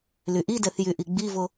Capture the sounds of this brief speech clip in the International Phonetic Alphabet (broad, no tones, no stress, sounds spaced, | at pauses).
l y ʔ i d ɛ θ j y ʔ i ɡ͡b i v o